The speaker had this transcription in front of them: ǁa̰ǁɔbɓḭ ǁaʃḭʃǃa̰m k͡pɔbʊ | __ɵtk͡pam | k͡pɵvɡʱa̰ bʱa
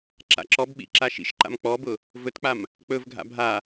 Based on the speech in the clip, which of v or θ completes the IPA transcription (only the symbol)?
v